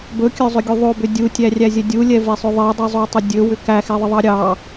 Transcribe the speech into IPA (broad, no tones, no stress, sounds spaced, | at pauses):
b ɵ kʲ ɵ zˤ ʏ ɡʲ u ðˤ o b ʏ dʲ u tʲ æ rʲ æ zʲ ɛ dʲ u lʲ ɛ v e sˤ ɵ ðˤ e dˤ u zˤ o tˤ ʏ dʲ ɵ w ʏ k æ x ɛ ðˤ ə ðˤ ɑ ɾʲ ɑ